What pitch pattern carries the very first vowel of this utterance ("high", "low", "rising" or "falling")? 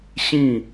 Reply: falling